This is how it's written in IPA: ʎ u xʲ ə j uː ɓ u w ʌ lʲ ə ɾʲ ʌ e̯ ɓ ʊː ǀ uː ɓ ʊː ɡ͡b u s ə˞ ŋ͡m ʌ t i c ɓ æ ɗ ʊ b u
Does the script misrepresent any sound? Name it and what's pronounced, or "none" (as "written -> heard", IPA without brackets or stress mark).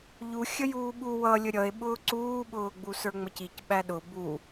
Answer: t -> c